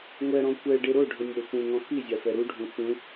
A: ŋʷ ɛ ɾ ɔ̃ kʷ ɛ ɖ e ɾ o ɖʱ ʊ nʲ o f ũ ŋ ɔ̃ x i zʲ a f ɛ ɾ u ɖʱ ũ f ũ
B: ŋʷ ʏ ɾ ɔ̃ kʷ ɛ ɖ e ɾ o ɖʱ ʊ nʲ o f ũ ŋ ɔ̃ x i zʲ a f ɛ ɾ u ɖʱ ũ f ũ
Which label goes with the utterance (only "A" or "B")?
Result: A